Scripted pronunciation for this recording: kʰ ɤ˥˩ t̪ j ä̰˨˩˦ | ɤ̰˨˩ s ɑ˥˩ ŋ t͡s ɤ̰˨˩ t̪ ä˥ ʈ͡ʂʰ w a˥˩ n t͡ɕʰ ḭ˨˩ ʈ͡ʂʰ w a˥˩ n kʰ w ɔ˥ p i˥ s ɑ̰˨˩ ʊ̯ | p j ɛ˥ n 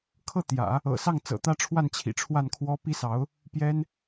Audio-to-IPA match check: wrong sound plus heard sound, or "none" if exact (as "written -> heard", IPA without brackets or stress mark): ɑ̰˨˩ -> ɑ˧˥